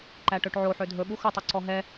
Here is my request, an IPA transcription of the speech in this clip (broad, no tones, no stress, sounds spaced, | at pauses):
ǃ æ ʈ ø ʈ ʕ o ħ ø dʱ ɵ ɓ u x ɵ tˤ u ǀ ɔ ɦ ɛ